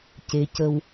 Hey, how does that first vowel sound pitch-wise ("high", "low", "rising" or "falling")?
rising